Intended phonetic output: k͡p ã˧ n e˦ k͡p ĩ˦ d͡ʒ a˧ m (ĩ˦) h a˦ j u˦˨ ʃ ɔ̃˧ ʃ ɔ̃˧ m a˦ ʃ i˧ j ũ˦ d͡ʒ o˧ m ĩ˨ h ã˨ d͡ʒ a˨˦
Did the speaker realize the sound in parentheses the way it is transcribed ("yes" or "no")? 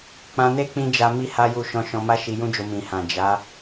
no